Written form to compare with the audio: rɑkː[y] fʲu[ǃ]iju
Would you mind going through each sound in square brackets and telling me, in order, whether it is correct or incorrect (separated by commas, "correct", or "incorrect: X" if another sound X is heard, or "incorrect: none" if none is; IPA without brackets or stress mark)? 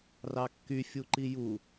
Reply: correct, correct